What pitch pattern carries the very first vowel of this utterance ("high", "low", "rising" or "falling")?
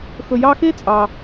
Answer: low